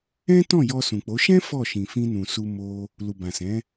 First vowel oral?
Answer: no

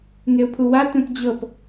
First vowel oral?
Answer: yes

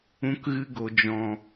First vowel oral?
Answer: no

